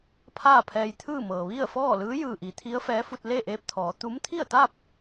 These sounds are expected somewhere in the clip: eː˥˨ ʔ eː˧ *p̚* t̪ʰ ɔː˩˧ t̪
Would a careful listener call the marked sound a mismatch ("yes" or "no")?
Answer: no